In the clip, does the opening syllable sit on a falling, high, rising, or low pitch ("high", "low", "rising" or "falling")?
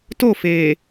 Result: falling